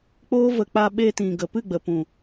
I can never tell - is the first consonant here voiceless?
yes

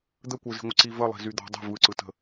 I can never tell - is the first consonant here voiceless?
no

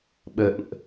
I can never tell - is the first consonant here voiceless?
no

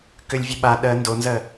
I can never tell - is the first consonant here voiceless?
yes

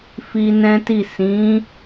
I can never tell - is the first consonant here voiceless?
yes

